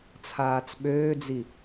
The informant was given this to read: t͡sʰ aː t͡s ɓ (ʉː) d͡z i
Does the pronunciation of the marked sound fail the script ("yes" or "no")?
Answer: yes